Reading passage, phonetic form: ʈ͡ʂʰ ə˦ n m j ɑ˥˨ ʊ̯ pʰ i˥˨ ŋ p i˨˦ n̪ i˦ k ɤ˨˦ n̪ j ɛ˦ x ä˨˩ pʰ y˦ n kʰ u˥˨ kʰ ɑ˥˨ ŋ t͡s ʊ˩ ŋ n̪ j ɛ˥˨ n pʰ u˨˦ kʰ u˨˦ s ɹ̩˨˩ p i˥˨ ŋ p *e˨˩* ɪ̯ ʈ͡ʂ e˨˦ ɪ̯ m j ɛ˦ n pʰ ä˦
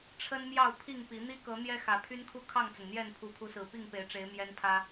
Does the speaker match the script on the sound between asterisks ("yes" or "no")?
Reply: no